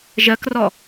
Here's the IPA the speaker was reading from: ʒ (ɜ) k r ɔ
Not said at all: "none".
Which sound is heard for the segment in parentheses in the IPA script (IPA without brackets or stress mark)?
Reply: ɜ